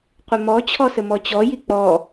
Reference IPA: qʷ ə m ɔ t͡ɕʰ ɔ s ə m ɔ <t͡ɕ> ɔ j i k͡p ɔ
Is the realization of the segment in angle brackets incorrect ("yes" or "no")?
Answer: no